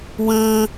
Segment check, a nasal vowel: present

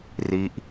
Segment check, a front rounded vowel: absent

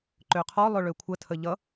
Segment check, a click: present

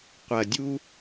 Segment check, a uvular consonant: present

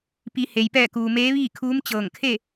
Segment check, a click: absent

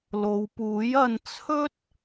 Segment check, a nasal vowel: absent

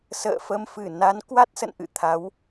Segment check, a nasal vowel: absent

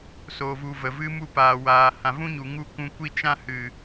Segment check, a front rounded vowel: absent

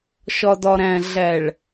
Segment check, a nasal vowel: present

